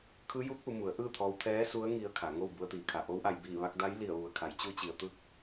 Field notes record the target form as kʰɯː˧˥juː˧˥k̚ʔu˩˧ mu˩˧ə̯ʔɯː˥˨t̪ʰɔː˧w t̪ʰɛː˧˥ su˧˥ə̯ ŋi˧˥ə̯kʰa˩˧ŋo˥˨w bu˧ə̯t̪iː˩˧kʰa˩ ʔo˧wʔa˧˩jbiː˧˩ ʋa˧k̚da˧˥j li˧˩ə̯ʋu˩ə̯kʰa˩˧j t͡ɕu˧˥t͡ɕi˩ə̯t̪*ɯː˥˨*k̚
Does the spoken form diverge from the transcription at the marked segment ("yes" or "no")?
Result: no